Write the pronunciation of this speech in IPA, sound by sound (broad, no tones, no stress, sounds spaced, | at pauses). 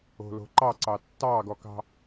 o̤ l o̤ ǃ ɑ ǀ ɑ tː ɑ ɡ ɔ k ɑ̤